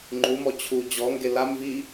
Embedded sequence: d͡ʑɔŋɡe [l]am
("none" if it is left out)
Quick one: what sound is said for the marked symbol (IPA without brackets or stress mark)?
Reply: l